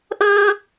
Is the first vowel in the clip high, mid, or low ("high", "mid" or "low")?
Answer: mid